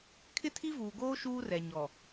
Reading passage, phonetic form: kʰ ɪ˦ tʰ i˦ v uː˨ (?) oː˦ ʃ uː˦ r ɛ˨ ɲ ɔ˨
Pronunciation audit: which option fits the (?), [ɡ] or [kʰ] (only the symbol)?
ɡ